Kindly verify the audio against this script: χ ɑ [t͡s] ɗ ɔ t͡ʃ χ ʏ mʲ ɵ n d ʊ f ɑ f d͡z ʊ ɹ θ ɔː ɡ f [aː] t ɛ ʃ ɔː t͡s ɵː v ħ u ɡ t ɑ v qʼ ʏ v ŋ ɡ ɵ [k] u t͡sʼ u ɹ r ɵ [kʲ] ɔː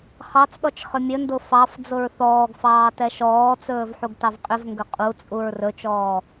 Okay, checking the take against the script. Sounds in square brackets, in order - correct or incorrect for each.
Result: correct, incorrect: ɑː, incorrect: qʼ, incorrect: t͡ʃ

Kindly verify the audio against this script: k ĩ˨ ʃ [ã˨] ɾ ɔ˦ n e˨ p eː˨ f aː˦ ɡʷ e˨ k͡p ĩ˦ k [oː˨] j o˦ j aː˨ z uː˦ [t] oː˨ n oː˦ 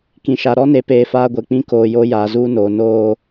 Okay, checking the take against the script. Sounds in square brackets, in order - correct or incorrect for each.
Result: incorrect: a˨, correct, incorrect: n

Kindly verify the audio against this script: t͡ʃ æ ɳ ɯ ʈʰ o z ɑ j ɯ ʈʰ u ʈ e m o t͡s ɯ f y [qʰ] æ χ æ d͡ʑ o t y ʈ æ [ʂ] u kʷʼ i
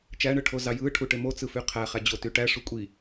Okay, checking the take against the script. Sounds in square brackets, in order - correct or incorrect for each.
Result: correct, correct

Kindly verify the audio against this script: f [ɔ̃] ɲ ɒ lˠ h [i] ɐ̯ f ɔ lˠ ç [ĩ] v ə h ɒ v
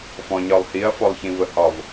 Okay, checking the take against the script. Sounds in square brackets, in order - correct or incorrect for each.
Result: correct, correct, correct

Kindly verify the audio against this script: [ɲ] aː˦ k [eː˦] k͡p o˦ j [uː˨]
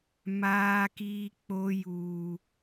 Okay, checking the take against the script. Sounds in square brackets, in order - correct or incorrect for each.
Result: incorrect: m, incorrect: iː˦, incorrect: uː˦

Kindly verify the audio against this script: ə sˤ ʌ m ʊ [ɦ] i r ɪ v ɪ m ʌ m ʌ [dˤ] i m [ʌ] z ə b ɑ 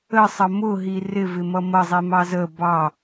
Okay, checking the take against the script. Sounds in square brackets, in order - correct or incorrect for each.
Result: correct, incorrect: zˤ, incorrect: ɑ

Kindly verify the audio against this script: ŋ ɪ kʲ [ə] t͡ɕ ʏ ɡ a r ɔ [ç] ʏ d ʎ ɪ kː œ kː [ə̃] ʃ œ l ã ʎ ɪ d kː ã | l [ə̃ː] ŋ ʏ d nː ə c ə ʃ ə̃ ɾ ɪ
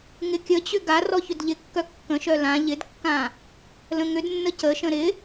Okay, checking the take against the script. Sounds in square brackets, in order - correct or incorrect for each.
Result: correct, correct, correct, incorrect: ə̃

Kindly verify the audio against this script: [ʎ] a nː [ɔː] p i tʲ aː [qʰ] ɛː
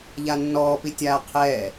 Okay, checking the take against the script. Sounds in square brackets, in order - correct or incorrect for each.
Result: correct, correct, correct

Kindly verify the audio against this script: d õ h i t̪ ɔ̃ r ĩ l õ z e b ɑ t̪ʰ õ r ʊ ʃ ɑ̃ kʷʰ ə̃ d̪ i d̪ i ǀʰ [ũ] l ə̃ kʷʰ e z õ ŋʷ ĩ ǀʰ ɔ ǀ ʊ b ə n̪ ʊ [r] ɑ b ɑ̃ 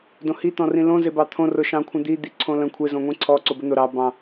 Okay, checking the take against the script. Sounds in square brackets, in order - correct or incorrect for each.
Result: incorrect: õ, incorrect: ɾ

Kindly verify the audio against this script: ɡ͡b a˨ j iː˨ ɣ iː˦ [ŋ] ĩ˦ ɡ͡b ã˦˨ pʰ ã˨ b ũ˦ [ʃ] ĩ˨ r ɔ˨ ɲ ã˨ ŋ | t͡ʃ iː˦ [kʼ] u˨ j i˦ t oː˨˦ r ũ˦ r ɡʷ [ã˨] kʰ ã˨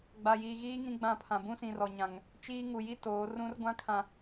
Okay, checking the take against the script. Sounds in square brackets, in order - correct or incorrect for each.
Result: correct, incorrect: s, incorrect: ŋ, incorrect: ã˦

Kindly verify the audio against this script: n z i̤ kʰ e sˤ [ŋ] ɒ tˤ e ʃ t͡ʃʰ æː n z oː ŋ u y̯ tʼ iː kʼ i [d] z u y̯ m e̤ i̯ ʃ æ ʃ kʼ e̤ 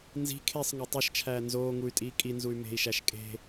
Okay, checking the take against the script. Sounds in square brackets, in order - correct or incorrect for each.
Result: correct, incorrect: n

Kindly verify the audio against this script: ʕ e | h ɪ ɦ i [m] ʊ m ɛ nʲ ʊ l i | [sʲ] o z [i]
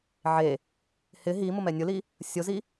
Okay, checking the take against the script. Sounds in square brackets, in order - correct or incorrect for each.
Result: correct, correct, correct

